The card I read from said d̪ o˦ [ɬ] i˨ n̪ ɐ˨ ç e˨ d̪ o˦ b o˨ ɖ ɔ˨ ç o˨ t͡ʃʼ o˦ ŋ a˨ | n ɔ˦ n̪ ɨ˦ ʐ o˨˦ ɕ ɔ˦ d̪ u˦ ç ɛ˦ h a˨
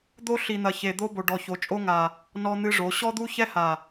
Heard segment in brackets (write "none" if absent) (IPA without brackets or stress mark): ɬ